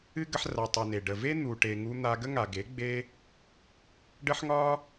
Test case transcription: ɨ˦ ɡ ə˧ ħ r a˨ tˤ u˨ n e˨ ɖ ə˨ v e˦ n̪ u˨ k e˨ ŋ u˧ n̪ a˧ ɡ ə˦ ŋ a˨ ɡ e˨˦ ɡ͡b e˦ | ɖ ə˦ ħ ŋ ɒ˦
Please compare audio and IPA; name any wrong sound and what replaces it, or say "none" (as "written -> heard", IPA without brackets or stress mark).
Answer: k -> ʈ